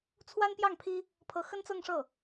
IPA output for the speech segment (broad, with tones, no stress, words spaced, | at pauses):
t͡sʰwa˥npjɑ˥˩ŋpʰi˥ | pʰɤ˧˥xə˥nt͡sɤ˥˧ŋ ʂɤ˥˩